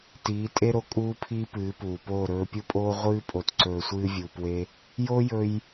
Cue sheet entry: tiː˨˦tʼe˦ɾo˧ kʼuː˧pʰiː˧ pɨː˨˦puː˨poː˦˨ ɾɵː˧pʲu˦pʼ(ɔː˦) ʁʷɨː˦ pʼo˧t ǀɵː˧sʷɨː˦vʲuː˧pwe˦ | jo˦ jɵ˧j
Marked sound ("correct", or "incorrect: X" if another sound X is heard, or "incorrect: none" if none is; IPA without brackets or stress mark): incorrect: oː˦